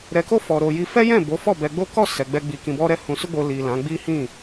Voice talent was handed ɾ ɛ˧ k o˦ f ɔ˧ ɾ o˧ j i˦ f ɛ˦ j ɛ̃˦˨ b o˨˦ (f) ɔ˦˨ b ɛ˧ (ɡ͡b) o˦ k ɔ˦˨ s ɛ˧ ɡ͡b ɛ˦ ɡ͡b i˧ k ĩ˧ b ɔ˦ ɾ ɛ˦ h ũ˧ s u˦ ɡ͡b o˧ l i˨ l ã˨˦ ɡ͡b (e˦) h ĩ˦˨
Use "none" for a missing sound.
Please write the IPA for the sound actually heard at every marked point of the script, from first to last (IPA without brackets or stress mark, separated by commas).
f, ɡ͡b, i˦